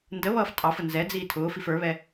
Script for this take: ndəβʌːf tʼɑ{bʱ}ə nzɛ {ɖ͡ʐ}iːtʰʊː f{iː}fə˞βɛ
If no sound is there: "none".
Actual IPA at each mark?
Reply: f, d͡z, i

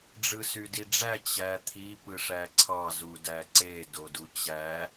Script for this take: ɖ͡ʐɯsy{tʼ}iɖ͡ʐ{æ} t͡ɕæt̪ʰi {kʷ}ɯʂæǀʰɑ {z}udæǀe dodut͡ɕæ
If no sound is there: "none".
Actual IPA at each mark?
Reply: d, æ, p, z

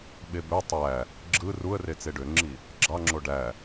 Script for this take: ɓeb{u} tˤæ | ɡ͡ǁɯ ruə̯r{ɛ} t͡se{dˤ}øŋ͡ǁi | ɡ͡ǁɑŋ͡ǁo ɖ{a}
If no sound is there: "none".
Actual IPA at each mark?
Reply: ø, e, ɖ, æ

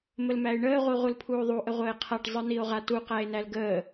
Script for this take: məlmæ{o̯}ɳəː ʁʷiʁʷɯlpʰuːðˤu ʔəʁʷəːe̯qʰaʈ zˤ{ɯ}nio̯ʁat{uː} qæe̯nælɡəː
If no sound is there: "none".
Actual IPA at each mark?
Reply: e̯, ɯ, u

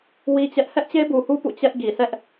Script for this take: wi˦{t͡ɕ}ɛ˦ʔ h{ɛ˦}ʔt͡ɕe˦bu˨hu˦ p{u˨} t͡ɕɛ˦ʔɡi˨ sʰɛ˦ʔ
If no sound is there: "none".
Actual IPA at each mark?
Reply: t͡ɕ, ɛ˦, ṵ˦˨

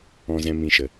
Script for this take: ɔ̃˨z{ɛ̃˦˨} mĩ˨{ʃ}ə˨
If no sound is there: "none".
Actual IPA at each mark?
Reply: ɛ̃˨, ʃ

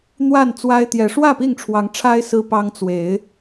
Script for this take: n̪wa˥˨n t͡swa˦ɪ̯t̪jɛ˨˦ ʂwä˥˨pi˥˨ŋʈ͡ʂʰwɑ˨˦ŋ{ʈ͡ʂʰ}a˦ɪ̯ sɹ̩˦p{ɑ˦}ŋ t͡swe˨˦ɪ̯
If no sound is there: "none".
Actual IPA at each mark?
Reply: ʈ͡ʂʰ, ɑ˦

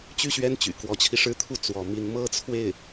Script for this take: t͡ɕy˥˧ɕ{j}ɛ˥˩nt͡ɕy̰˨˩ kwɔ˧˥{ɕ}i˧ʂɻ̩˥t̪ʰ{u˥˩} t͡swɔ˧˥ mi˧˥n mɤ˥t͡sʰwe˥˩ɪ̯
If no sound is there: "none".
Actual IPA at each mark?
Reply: ɥ, t͡ɕʰ, u˥˩

